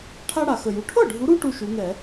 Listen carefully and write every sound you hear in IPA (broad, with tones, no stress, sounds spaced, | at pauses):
ʈʰ a˦ ɽ a˨˩ x ə˨˩ j u˨˩ ʈʰ ɤ˥˩ ɖʱ u˨˦ ɾ u˦ ʈ u˦ ʃ u˨˦ ŋ ɛ˧˩˧